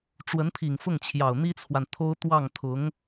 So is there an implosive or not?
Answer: no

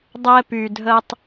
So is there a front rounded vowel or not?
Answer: yes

